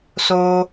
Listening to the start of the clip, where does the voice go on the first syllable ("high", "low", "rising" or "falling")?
high